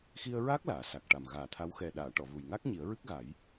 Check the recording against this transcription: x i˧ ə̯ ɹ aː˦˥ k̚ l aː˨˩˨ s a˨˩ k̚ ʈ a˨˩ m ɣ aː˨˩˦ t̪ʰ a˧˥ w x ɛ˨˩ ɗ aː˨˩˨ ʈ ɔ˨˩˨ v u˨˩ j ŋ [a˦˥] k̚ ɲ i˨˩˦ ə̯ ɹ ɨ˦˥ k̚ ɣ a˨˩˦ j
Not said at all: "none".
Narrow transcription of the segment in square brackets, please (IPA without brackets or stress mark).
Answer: a˦˥